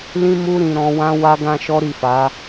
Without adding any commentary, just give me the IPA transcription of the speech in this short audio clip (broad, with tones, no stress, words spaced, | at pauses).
lĩ˦mu˦ ɾĩ˧ ɾɔ̃˧wã˦ wa˦ɡã˦ʃɔ˦ɾi˦˨ fa˨˦